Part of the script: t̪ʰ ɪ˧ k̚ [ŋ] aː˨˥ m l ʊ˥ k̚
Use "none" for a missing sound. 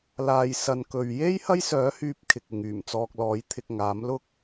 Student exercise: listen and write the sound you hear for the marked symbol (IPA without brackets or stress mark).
ŋ